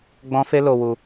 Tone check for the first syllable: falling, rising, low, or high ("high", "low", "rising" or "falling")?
high